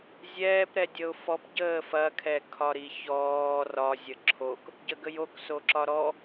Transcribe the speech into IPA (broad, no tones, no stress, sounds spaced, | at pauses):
zʲ ɛː p ɾ ɛ dʲ ə ʊ̯ f ɔ p ɟ əː f ɐ kʰ ɛ kʰ ɒ ɾ i ç ɔː r ɒ zʲ ə ǁʰ o k | ɟ ə ɡ ə j o k s o ǁ ɒ ɾ ɔ